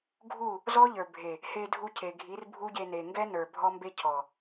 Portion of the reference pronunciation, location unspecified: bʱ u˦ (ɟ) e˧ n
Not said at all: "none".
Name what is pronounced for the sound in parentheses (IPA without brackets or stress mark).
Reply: ɟ